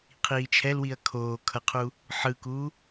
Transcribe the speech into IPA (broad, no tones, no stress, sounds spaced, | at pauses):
qʰ iː t͡ʃʰ ɛ l w i ɐ̯ kʰ oː kʰ ʌ qʰ uː | ħ ɯ k uː